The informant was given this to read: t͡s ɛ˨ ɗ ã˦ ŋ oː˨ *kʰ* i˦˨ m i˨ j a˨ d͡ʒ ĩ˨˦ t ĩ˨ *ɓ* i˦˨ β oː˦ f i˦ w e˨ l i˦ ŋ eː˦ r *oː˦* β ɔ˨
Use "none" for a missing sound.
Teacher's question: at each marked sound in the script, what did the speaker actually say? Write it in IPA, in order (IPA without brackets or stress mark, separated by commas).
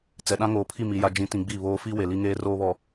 pʰ, ɡ͡b, oː˦